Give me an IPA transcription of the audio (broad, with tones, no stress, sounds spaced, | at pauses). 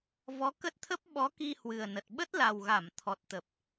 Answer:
v ɔ˨˦ k ə˦˥ t̚ t̪ʰ ə˦˥ p̚ ɓ ɔ˨˦ k i˧ h w ɨ˨˩ ə̯ n ə˨˩ t̚ ɓ ə˦˥ t̚ l a˨˩ w ɣ a˧˩ m t̪ʰ ɔ˨˩ t̚ t̪ ə˨˩ p̚